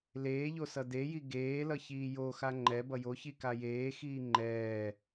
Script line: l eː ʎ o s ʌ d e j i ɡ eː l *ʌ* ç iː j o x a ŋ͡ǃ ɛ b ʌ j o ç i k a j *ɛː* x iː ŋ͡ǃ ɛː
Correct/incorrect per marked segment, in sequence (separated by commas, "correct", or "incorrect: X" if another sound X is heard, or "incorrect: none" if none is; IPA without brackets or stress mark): correct, incorrect: eː